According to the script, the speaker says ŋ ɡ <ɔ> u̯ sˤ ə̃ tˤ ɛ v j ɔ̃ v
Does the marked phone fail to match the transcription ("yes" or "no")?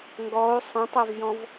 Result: no